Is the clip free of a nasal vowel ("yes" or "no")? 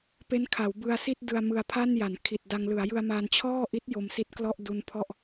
yes